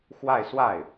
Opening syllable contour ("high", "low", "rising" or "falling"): falling